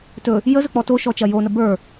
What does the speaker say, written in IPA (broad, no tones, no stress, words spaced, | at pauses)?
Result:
tɵ | jəzɵ k͡pɔtoʃɔ t͡ʃɐjonə bə˞